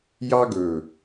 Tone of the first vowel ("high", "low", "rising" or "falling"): high